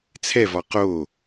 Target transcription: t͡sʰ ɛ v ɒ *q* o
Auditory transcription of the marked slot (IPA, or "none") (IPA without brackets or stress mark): q